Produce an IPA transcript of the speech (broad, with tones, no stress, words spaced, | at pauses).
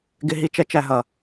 ɡɪ˧ɦi˧t͡ʃɛ˧ t͡ʃæ˨ɦʌ˨